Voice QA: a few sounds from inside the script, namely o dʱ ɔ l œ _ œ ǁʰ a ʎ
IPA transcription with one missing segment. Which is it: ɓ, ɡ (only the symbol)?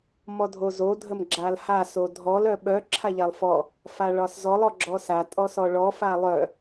ɓ